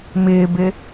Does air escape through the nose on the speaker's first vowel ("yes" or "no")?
no